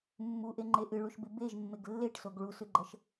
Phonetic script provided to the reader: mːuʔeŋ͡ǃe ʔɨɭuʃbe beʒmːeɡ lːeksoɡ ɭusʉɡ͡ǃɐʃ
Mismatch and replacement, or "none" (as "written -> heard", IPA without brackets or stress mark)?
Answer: k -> ʈ